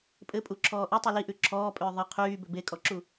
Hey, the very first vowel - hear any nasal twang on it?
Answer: no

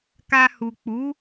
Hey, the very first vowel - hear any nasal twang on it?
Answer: no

